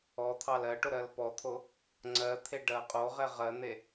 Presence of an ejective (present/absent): present